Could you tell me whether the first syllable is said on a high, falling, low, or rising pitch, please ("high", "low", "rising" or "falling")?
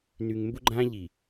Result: low